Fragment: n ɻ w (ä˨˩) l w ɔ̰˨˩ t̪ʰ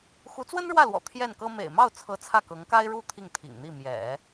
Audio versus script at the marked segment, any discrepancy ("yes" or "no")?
yes